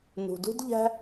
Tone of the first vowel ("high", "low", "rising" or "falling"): low